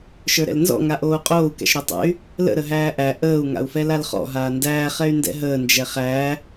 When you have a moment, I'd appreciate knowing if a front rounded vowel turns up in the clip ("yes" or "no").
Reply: yes